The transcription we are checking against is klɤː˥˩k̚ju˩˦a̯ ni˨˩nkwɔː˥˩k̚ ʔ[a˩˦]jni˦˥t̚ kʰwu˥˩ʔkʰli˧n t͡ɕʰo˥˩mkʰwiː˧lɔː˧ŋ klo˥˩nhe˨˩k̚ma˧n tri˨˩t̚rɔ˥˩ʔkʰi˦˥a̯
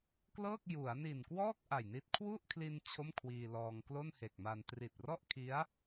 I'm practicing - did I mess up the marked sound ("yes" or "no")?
yes